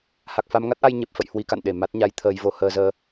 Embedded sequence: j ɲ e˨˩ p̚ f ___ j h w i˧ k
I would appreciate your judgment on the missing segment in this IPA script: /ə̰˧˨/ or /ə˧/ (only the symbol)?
ə̰˧˨